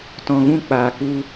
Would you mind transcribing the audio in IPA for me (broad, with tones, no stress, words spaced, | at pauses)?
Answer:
tɔ̃˨ɣũ˧k͡paː˨ku˧